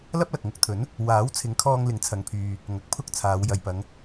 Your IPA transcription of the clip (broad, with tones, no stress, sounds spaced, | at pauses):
l ɐ˥ p̚ l ɐ˨ k̚ ŋ ʊ˧ k̚ t̪ʰ ɵ˨˥ n | w aː˨˥ w t͡sʰ ɪ˨˥ ŋ kʰ ɔː˧ ŋ l ɪ˨˥ ŋ t͡sʰ ɐ˨ ŋ pʰ yː˨ | ŋ ɐ˨˥ k̚ pʰ ʊ˥ k̚ t͡sʰ aː˨˧ w j ɐ˨ j p ɐ˨˧ ŋ